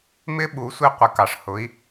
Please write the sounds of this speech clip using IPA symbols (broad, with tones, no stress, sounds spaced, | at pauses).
m ɪ˧˥ ɓ u˩˧ sʷ i˧ qʷ ɪ˩˧ k ɑ˩ ʂ h ʊ˩˧ i̯